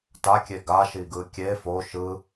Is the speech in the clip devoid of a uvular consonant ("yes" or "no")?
yes